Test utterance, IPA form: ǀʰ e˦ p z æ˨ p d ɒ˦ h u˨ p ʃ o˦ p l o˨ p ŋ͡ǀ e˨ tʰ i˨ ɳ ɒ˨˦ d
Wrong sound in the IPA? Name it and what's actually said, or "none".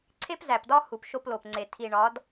none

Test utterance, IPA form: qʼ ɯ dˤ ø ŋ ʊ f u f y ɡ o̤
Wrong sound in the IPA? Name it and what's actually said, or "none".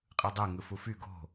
ʊ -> ɯ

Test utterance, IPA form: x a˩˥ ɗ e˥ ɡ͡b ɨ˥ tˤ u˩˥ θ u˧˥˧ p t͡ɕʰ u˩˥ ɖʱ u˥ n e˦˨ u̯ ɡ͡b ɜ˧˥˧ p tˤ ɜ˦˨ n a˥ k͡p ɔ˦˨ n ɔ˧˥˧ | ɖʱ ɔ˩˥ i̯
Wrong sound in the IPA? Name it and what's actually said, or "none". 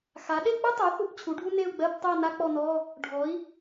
none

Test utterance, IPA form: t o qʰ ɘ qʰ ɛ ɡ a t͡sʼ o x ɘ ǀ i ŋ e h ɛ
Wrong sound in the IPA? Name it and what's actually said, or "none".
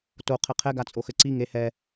none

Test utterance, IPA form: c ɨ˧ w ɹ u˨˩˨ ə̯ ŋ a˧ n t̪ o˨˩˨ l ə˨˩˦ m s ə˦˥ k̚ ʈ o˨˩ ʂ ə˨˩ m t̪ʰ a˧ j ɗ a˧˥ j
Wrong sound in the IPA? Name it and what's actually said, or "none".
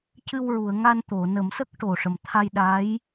l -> n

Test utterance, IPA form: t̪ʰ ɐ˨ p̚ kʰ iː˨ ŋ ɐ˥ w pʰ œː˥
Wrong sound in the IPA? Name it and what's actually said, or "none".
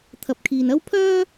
ŋ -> n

